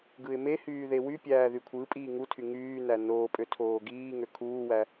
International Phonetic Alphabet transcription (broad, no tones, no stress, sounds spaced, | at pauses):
ɡ ɯ ɪ̯ m e h yː ð e w y pʲ æː ð y kʷʰ ɯ pʼ iː ŋ u tʰ y ŋ yː n æ n oː pʼ ø tʰ oː ɡ iː ŋ ø kʰ uː w æ